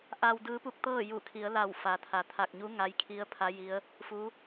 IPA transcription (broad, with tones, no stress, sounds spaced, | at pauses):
ʔ a˧ w d ɯː˧˥ p u˧ k̚ t̪ ɤː˥˨ j u˧˩ kʰ i˩˧ ə̯ l a˧˩ w f a˩ t̪ʰ a˩˧ t̪ʰ a˧˩ k̚ ɲ u˧˥ ŋ a˧˥ j kʰ i˧˥ ə̯ pʰ a˧˥ j i˧˥ ə̯ | f u˧˥